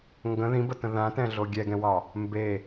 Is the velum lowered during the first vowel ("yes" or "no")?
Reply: yes